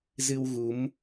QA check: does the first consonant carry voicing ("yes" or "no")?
yes